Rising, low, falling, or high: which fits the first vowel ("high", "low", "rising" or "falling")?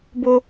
high